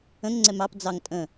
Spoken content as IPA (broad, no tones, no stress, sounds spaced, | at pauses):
ə̃ ŋ ŋ͡ǀ ɛ m ɑ p d͡z ɑ ŋ tʼ ə̃